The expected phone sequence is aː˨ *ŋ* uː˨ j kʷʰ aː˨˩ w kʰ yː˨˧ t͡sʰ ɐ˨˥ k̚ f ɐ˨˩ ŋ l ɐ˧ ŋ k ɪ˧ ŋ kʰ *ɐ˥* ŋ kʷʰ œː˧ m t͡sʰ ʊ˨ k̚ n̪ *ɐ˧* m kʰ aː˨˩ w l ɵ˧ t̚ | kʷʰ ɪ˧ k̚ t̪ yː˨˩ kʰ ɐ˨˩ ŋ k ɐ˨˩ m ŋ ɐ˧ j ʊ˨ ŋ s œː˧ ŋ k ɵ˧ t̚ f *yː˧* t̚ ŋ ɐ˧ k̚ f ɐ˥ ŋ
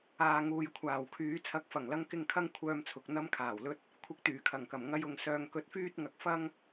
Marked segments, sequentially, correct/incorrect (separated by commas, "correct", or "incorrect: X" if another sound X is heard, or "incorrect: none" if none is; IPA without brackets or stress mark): correct, correct, correct, incorrect: yː˥